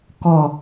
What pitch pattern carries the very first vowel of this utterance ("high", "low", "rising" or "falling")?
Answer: low